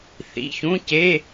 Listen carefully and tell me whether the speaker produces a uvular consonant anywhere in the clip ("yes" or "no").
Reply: no